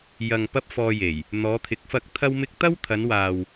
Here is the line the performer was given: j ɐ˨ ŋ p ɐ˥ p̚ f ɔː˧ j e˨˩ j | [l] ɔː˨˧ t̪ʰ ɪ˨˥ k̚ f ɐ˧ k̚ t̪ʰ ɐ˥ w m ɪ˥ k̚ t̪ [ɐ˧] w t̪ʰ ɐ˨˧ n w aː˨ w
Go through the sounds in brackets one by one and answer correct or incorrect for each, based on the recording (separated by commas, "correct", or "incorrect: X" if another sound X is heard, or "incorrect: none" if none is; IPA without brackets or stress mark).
incorrect: n̪, incorrect: ɐ˥